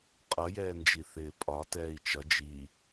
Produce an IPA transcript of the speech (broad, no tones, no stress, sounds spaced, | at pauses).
qʼ ʌ j ɛː n d͡ʒ i θ ɪː pʼ ɒ t ɛː i̯ t͡ʃ ʌ d͡ʒ i